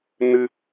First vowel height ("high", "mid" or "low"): high